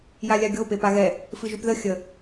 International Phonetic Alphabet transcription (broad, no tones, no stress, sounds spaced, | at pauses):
j a lʲ a ɡʲ o p e p a ɣ ɛ | f ɨ ʒ y p ð ə xʲ ə